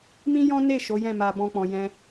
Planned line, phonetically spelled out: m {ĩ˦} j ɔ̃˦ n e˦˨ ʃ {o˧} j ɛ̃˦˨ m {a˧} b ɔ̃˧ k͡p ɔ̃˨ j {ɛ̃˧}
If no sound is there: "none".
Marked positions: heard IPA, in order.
ĩ˦, o˨˦, a˧, ɛ̃˧

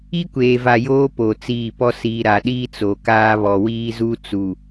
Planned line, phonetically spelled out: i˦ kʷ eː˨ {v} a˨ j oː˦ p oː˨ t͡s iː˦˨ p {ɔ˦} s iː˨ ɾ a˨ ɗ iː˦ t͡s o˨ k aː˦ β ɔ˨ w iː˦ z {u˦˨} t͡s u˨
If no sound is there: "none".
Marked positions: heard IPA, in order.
v, ɔ˦, u˦

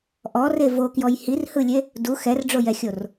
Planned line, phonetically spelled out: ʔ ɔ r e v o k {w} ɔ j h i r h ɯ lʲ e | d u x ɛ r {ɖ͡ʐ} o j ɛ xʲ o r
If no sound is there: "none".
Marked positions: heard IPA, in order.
j, ɖ͡ʐ

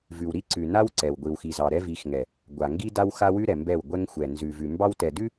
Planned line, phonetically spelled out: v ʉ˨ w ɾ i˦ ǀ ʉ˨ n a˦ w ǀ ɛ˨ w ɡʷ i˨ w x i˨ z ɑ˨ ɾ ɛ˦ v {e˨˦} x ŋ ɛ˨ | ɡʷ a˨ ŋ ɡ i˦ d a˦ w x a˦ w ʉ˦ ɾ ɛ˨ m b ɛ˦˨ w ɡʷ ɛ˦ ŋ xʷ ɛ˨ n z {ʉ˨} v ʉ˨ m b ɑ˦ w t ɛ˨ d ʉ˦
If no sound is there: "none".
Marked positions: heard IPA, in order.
i˨˦, ʉ˨

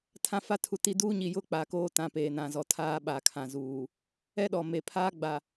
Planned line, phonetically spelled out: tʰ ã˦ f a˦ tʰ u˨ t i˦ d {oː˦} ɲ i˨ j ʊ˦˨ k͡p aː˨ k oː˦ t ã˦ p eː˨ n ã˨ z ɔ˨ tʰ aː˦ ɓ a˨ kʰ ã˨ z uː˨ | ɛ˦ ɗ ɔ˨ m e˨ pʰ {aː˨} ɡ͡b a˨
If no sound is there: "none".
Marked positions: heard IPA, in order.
uː˦, aː˦

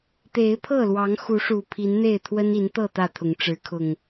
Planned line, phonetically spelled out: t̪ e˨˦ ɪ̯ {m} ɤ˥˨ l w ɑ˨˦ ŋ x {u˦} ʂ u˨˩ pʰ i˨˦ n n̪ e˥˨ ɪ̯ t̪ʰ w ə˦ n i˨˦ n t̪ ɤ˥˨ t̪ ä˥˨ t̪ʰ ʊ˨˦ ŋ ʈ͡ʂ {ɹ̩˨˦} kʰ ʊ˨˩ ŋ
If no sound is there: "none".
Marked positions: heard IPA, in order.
pʰ, u˨˦, ɻ̩˨˦

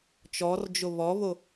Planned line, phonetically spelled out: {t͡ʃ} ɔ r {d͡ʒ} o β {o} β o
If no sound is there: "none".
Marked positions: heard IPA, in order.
t͡ʃ, d͡ʒ, ɔ

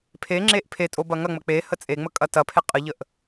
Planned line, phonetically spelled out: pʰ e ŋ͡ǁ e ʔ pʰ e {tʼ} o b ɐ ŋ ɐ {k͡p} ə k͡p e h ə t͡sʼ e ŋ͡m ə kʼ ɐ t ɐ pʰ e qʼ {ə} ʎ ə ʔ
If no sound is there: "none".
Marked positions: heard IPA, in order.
tʼ, ŋ͡m, ə

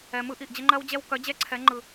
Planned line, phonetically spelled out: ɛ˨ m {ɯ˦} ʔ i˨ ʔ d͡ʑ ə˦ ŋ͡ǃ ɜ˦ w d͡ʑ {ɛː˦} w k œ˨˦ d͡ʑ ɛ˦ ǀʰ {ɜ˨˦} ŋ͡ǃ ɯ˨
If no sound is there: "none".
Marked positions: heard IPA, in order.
ɯ˦, ɛ˦, ɛ˨˦

